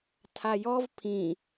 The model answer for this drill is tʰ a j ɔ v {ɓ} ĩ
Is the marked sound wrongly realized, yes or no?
yes